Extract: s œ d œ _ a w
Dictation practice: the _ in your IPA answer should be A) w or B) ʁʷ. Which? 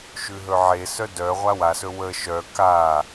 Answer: B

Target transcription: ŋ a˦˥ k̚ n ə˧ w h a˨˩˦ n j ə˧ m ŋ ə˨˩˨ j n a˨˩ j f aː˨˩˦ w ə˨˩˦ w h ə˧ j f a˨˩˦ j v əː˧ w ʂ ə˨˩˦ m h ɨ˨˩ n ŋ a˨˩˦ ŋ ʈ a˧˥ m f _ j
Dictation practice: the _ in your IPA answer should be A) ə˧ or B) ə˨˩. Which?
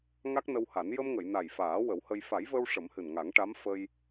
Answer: A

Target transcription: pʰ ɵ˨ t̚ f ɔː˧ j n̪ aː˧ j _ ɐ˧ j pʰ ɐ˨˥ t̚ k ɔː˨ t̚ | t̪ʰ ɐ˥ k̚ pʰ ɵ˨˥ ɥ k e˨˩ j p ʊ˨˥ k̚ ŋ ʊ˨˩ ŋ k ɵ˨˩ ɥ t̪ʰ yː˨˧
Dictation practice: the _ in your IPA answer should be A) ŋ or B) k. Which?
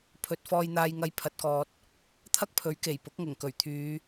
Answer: A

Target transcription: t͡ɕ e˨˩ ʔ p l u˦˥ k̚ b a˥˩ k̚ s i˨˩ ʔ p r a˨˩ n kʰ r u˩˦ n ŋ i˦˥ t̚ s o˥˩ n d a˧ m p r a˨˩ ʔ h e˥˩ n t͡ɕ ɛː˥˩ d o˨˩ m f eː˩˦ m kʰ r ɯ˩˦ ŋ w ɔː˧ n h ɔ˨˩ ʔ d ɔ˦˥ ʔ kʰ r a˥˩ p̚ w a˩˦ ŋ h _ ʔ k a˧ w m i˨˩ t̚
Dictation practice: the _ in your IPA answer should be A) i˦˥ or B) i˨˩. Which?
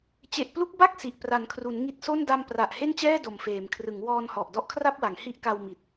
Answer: A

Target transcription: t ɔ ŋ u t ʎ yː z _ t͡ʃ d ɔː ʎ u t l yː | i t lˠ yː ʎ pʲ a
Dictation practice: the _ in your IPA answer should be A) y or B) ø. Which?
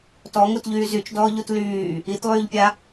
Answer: A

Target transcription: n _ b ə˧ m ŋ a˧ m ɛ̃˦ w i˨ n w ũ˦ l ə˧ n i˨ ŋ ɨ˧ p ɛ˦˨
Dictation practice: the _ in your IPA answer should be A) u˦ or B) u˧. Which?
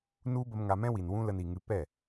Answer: A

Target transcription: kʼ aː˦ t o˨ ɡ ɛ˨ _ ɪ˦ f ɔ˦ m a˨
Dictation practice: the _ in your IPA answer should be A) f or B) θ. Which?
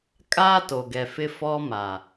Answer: A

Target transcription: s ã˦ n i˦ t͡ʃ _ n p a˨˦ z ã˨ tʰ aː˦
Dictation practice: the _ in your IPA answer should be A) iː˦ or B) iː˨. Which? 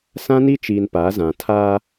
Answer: B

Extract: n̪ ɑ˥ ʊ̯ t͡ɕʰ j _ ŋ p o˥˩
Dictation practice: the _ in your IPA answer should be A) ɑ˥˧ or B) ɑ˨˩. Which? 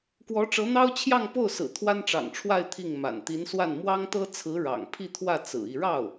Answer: A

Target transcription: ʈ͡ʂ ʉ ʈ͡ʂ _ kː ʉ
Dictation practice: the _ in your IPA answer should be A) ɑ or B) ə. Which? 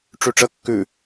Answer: B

